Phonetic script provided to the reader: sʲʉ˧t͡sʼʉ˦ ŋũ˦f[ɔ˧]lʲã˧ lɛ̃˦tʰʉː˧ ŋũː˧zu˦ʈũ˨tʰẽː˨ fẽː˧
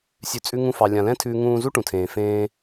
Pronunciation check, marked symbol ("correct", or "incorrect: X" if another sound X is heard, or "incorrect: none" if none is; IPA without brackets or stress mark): incorrect: ɑ˧